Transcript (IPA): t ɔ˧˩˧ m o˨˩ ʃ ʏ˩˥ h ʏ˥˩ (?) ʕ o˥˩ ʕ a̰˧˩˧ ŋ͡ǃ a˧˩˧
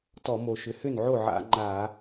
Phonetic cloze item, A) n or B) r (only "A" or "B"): A